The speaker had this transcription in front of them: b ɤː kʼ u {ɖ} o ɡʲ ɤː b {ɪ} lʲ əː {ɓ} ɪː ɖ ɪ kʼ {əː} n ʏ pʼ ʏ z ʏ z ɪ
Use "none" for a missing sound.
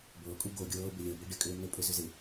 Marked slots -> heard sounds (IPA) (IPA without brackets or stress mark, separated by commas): ɡ, ɪ, b, ʏː